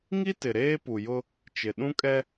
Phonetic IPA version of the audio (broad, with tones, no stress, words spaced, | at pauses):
ŋi˦tɪ˨ ɾeː˦ pu˨jʊ˦ | t͡ʃɪ˨ ɗũ˦kʼɛ˦